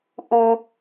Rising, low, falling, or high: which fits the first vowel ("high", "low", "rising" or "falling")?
low